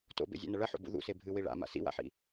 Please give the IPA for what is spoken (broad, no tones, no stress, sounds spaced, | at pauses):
t o̰ b ḛ zʲ a̰ n ɐ ɭ ɐ ħ o̰ b ṵ ð ṵ s e bʱ ɨ w i ɭ a̰ m a̰ s ḭ w a̰ ħ ḭ